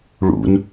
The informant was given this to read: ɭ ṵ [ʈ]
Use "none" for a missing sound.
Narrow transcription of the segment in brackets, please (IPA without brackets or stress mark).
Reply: n